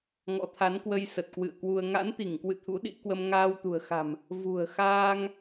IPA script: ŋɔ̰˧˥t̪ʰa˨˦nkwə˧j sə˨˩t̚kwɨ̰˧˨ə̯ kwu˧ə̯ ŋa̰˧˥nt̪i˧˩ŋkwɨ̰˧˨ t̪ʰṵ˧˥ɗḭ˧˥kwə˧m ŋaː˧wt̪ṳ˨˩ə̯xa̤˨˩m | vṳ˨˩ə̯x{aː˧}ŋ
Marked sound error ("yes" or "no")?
no